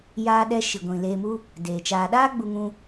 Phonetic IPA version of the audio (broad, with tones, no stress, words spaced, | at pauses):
jaː˧ɗɛ˧ ʃi˨ɡʷĩ˨ leː˧mu˦ | deː˨t͡ʃaː˧ ɗaː˦ ɡ͡bu˧ŋũ˧